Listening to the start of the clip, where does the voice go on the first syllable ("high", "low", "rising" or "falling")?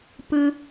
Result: high